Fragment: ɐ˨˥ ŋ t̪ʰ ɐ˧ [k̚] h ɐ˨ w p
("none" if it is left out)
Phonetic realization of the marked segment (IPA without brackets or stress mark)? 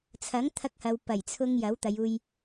k̚